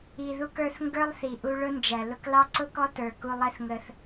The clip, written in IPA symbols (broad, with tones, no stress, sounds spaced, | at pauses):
i˨ ð u˧ k ə˞˧ θ ŋ ɡ ə˞˦ lˠ θ i˨ ʔ u˧ ɭ ʊ˦ n d͡ʒ æ˨ l ʊ˧ k l ɑ˦ ǀ ʊ˦ k ɔ˦ t ə˞˨ k u˧ lˠ ɛ˦ θ ŋ ə˧ θ